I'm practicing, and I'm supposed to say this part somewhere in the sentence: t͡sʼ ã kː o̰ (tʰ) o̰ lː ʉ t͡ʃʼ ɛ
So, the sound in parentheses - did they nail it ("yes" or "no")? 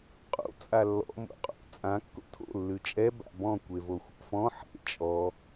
yes